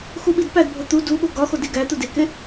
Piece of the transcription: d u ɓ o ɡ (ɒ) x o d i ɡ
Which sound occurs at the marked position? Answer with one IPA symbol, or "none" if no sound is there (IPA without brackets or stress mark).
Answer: ɒ